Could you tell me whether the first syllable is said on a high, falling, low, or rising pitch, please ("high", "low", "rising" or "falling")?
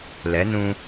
rising